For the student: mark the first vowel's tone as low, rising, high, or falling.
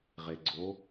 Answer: low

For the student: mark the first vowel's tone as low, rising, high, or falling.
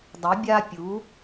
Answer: rising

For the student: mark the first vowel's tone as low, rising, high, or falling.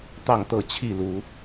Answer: falling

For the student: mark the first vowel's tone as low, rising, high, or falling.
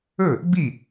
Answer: falling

